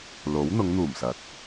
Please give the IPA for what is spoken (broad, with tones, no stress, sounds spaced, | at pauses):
l o˨˥ w n̪ ʊ˨˧ ŋ n̪ uː˨˩ m s ɐ˨˥ t̚